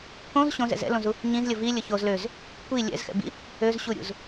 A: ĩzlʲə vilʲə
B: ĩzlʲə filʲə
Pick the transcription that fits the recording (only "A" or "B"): A